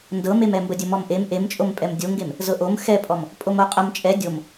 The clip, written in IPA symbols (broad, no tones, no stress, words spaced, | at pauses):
ndɤmemɛ mbədʲəmɔmʔem ʔemt͡ʃʼom pʼɛmdʲoŋɡem | zɤʔom xɛpʼɔm | pʼomoqʼəm t͡ʃʼɛ dʲom